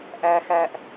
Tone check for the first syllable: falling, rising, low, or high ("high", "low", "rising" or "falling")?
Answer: high